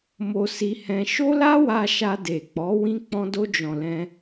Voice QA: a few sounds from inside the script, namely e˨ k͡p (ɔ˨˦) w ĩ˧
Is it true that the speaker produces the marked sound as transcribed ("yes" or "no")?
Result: yes